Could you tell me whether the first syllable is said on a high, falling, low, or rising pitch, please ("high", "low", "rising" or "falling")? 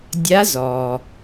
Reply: rising